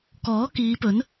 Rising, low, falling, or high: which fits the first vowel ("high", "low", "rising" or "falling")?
rising